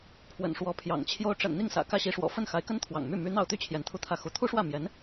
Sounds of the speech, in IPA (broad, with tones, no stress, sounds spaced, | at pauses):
pʰ w ə̰˨˩ n ʂ w ɔ˧˥ pʰ j ɑ̰˨˩ ŋ t͡ɕʰ j o˧˥ ʊ̯ ʈ͡ʂ ə̰˨˩ n n̪ i˥˩ ŋ s ä̰˨˩ k ä˥˩ ɕ i˧˥ ʂ w ɔ̰˨˩ f ə˥˩ n x a˧˥ ɪ̯ k ə˥ n t̪ʰ w ɑ̰˨˩ ŋ m y˥˩ m y˧˥ n̪ ɑ˥˩ ʊ̯ t̪ y˥ t͡ɕʰ j ɛ˧˥ n t̪ʰ u˥˧ t̪ʰ ä˥˩ x u˧˥ t̪ʰ u˥ ʂ w ä˥˩ m j ɛ˧˥ n